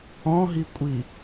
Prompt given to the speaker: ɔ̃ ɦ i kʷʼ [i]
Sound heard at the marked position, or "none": i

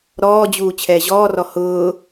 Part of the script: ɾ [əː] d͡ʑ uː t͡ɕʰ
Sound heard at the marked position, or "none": ɔː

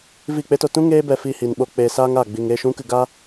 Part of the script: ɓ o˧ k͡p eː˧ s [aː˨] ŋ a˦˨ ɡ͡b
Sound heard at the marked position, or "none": aː˦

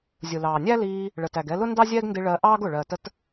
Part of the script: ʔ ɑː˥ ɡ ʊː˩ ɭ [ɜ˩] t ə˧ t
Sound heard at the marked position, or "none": ɜ˩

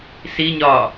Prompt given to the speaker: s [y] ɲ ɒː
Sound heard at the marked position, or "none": i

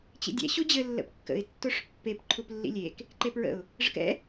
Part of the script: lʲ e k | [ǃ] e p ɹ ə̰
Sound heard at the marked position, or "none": ǃ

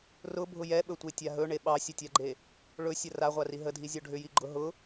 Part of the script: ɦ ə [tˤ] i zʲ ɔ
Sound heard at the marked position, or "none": dʱ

